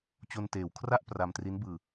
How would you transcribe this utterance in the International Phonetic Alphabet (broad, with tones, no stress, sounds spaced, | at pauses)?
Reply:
t͡ɕ o˧ n t eː˨˩ w kʰ r a˥˩ ʔ p r a˧ m t r i˦˥ n b ɯː˧